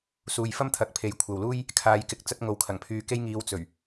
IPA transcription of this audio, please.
s uː˨ j f ɐ˥ m t̪ʰ ɐ˨˥ k̚ pʰ e˨˥ j kʷʰ ɐ˨ w l uː˥ j | kʰ aː˨ j k ɪ˨˥ k̚ t͡s ɐ˧ t̚ ŋ o˨ w kʰ ɐ˨˩ ŋ pʰ yː˧ k e˥ j ŋ iː˧ w t͡s ɵ˨˩ ɥ

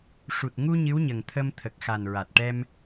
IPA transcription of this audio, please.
ʂ u˨˩ t̚ ŋ u˧ ɲ ɨ˧˥ w ɲ ə˨˩ ŋ t̪ʰ ə˧ m t̪ʰ ə˨˩ k̚ x a˨˩ n ɹ a˨˩ t̚ ʈ ɛ˧ m

